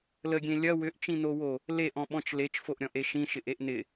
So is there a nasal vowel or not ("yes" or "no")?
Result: yes